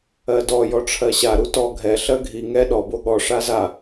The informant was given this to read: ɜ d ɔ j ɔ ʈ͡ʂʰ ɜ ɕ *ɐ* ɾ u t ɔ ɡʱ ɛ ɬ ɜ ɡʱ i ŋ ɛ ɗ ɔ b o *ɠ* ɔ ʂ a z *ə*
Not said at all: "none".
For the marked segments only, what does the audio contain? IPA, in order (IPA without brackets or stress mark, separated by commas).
a, ɠ, a